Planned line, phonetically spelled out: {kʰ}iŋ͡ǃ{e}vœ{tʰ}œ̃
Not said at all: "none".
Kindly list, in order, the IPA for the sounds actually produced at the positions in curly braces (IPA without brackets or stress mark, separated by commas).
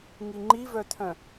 ŋ, i, tʰ